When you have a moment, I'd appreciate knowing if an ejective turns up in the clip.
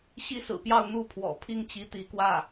no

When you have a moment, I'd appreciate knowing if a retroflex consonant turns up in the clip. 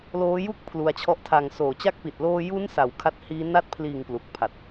no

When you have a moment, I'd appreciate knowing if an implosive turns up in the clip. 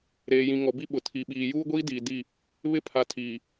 yes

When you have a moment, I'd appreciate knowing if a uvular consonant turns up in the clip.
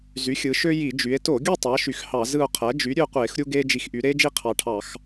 yes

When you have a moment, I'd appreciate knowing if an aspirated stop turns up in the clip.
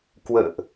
no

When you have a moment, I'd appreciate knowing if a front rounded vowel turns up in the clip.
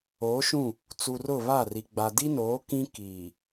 no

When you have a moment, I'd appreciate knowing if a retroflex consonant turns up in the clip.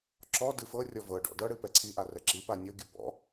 yes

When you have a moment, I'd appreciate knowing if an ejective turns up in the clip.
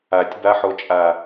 yes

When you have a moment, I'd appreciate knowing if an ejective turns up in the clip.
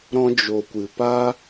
no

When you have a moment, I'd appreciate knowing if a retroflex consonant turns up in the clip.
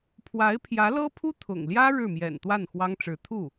yes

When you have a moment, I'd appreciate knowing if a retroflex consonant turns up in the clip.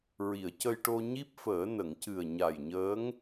yes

